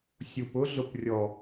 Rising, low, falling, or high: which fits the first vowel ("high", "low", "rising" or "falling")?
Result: low